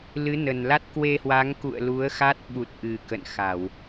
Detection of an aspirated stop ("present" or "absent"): absent